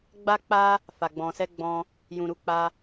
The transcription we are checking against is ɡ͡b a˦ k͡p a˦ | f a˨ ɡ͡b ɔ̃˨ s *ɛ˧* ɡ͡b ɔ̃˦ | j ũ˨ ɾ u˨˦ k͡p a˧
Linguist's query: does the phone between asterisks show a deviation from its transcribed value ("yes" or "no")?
no